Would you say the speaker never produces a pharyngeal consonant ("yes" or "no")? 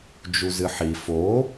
no